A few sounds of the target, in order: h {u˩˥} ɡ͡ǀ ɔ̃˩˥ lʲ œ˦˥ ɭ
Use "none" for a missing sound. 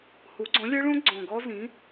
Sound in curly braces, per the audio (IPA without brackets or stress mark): u˩˥